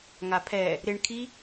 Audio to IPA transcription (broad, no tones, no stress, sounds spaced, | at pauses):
ŋ a pʰ ɛ | ɾ ɪ ɳ kʰ i